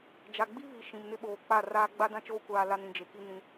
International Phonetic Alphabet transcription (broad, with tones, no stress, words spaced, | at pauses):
d͡ʒa˨ɡ͡bi˦βi˨ ʃĩ˨mnɪ˦ɓoː˨ k͡pa˦˨raː˦ ɡ͡ba˦dã˦t͡ʃoː˦ kʷaː˦la˦n ĩ˨d͡ʒe˨ki˦ nĩ˦